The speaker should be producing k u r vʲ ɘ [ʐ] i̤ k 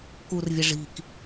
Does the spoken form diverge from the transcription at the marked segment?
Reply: no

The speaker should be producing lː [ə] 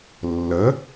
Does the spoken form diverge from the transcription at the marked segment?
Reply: no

